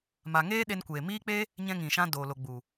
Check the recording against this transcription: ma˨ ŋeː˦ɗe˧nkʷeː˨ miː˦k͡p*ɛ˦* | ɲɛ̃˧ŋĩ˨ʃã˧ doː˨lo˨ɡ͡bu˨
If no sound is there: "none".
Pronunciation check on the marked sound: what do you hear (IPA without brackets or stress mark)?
e˦